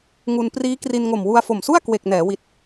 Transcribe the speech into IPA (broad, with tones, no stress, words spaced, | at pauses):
ŋu˧n priː˦˥ kri˧nŋo˨˩m wu˧a̯fo˨˩msu˥˩a̯ kwe˨˩k̚nɛː˩˦ wi˨˩t̚